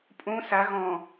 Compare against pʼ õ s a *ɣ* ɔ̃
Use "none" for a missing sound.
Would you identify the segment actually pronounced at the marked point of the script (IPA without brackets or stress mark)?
ɣ